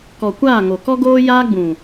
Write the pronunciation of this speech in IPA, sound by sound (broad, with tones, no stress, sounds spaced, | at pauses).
k ɔ˨ kʷ aː˦˨ ŋ o˨ k ɔ˦ ɡ oː˦ j aː˦ ɡ͡b ũ˨